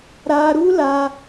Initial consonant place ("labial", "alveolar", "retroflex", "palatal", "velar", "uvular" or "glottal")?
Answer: alveolar